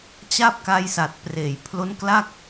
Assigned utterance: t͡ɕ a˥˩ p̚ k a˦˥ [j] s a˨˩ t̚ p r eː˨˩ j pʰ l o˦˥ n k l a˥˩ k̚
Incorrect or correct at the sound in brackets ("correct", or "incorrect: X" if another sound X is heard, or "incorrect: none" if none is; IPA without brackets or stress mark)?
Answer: correct